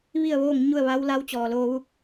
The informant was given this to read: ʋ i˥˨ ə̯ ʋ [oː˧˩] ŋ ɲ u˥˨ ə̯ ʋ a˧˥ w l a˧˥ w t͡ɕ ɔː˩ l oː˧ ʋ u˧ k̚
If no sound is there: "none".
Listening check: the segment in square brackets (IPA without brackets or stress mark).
oː˥˨